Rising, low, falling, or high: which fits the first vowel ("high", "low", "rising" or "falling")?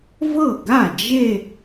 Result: falling